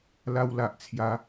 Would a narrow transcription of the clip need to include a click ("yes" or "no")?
no